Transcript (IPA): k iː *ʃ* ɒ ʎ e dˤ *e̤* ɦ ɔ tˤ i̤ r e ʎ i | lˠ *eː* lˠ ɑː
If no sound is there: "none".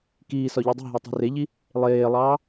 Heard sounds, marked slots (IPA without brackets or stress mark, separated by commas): s, e̤, eː